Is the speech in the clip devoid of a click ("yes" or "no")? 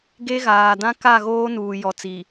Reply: yes